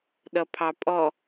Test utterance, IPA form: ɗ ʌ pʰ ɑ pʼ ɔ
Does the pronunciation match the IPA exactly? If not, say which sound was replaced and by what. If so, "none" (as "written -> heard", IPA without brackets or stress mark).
none